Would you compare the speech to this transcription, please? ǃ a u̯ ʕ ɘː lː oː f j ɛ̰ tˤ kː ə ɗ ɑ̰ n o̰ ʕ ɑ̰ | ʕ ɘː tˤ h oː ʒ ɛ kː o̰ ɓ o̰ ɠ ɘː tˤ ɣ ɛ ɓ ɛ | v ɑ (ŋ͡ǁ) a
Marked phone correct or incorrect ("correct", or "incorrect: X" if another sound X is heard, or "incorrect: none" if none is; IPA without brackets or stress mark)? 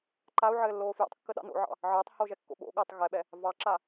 incorrect: ǁ